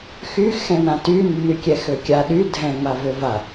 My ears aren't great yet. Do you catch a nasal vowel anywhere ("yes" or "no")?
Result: yes